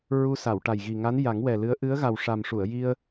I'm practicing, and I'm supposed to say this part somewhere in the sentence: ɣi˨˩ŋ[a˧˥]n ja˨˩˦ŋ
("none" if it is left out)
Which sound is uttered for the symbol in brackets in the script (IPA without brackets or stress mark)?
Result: a˧˥